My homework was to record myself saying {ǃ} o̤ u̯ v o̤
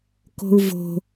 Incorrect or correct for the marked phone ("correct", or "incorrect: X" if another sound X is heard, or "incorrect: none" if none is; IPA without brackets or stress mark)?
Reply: incorrect: k